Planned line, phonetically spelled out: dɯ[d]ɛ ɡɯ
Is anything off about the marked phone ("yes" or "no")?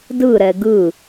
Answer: yes